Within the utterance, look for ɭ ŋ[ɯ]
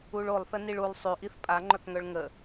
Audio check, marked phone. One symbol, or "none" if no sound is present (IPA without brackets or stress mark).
ə